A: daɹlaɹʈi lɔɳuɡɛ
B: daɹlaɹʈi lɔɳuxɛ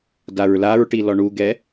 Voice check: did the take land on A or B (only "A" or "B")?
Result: A